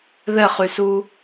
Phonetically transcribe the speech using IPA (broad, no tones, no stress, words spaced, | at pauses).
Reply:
ðɛχysu